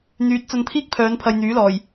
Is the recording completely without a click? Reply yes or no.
yes